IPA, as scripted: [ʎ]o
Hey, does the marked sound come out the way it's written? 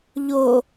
yes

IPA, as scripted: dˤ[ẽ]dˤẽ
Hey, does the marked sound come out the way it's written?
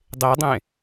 no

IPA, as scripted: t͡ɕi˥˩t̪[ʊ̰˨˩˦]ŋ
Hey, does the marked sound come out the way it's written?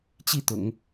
yes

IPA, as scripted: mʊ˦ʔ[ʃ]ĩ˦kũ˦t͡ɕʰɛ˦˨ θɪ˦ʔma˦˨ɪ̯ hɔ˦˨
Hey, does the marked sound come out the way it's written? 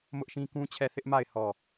yes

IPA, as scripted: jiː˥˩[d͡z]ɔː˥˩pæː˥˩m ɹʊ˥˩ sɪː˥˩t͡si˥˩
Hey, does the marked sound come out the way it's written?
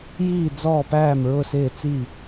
yes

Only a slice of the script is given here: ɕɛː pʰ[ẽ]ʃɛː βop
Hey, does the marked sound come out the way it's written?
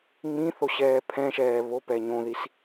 no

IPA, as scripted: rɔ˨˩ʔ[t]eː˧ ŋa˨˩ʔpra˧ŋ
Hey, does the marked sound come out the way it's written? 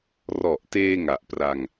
yes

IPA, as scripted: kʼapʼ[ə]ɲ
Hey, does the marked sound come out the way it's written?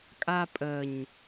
yes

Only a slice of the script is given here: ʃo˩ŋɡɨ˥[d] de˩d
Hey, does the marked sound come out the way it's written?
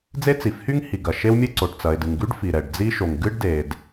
no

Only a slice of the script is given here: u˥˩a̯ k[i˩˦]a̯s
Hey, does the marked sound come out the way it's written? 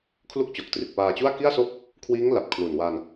no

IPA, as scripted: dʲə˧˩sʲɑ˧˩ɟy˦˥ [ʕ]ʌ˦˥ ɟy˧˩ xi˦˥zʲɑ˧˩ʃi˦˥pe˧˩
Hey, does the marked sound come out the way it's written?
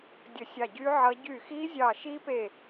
yes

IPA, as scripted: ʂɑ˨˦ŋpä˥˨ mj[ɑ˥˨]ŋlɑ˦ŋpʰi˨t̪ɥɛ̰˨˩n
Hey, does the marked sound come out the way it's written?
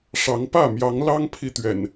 no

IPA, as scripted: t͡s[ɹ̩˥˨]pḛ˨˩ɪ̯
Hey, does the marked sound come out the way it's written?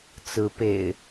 no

